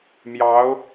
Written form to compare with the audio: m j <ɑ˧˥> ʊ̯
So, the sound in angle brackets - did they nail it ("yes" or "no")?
yes